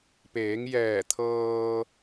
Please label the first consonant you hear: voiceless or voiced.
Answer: voiceless